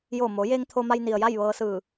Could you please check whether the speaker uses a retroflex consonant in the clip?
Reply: no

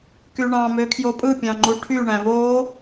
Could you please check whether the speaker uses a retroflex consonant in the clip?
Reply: yes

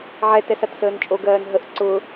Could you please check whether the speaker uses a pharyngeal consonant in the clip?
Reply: yes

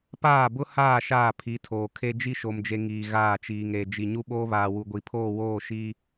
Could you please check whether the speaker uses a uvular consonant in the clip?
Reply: no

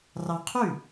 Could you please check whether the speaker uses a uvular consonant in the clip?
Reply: yes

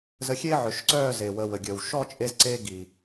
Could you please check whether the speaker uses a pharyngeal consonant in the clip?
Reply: yes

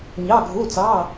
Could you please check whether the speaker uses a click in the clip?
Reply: no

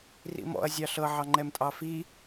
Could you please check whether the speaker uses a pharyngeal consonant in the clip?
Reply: yes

